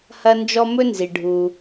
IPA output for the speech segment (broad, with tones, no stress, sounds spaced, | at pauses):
h ɐ˦ n d͡ʒ ɔ˦ m ɵ˥ n z i˩ ɖʱ u˩